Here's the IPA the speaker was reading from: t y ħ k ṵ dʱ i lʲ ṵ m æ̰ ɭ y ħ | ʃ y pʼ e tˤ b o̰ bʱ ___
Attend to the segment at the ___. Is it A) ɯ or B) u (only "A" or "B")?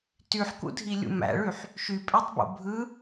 A